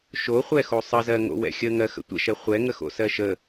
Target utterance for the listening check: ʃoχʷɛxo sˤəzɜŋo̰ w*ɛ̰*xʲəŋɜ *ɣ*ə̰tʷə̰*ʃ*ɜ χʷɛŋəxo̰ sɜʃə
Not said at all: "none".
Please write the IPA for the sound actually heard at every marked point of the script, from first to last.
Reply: ɛ̰, x, ʃ

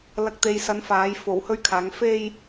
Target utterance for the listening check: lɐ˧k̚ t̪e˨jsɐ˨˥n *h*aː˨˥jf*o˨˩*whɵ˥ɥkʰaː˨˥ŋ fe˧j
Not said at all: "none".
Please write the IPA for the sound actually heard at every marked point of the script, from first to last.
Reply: f, o˨˩

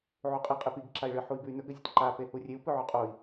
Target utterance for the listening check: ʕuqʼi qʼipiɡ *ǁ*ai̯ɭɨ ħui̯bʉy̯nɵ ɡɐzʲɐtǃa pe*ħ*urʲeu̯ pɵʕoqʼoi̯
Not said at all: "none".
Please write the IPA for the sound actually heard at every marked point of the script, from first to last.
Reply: ǁ, h

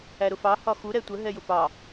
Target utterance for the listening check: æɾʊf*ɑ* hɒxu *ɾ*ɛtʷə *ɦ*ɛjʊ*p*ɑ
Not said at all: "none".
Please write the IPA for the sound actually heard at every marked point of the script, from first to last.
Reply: ɑ, ɾ, ɦ, p

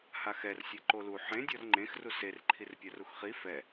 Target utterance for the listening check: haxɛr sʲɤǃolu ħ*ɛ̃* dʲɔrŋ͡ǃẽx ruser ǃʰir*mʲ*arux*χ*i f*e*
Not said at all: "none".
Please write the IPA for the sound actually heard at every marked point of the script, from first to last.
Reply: ẽ, pʲ, χ, ɛ

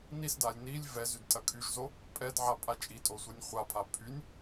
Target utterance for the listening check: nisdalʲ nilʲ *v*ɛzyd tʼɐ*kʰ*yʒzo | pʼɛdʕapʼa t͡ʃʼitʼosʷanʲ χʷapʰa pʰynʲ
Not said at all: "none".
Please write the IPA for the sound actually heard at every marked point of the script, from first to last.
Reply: v, kʰ

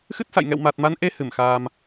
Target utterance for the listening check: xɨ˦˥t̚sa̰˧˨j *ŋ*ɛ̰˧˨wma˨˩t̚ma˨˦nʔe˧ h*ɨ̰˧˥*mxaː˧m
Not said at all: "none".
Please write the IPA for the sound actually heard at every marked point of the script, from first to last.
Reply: ŋ, ɨ˧˩

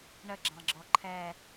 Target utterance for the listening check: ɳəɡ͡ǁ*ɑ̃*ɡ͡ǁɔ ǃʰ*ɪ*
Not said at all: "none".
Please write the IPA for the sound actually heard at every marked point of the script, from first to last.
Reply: ɑ̃, ɛ

